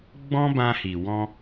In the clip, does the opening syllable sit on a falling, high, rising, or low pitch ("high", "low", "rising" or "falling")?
high